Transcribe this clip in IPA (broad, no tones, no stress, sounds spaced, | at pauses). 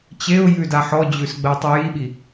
t͡ɕ e ʊ̯ j ʉ d a ħ ɔ d͡ʑ ʉ s ɡ͡b ə ʊ̯ tˤ ʉ j i ɓ i